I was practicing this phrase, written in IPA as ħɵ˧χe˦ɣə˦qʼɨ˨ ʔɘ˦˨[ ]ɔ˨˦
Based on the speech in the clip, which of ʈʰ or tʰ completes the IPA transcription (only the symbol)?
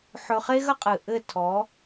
tʰ